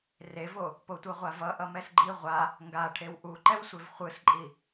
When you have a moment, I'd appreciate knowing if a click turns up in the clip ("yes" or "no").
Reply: yes